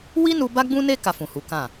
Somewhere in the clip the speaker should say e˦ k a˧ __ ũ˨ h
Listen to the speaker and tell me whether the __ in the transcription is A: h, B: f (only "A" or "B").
B